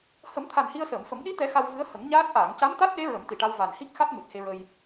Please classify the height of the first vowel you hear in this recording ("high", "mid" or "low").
mid